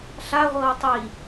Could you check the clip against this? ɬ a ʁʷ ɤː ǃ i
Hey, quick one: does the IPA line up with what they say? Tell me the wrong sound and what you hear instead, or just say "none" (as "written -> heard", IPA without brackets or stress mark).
ǃ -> tˤ